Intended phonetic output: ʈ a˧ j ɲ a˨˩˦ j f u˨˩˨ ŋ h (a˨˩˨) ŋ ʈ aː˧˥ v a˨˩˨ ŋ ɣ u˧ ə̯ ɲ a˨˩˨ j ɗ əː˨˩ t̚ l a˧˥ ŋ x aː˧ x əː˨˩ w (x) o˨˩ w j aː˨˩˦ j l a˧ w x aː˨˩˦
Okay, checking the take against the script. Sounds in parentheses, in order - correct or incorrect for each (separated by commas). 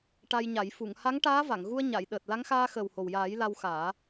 incorrect, incorrect